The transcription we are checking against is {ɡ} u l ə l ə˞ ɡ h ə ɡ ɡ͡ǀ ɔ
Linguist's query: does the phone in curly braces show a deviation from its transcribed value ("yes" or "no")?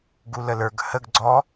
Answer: no